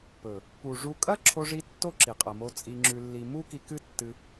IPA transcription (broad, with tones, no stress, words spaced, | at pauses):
pɵ˨ | pu˨ ʐu˧ kʼɐ˦ ǁʰo˧ʐi˧ tːo˦ǁi˨qʼɐ˨mo˧ t͡sʼi˧ŋ͡ǁʉ˧lːi˧ mu˦ki˧kɨ˦ tːɨ˧